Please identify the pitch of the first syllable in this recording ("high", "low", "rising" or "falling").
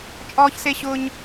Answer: high